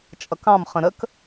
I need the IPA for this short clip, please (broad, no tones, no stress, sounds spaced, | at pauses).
t͡ʃʼ ʌ k ɑ̃ m χ ə̃ ɾ ə k